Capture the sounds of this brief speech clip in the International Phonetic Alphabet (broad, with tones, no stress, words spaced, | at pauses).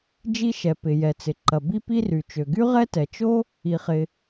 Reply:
d͡ʒi˥ʃɛ˩ pɪ˩ jɛ˩t͡sɪ˩ǃɐ˩ bi˥pi˥ry˩t͡ʃø˩ ɡy˥ʁɛ˥tɛ˩t͡ʃo˥ | i˩χɪ˩